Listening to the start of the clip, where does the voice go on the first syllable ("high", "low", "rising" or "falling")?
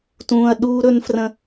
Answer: low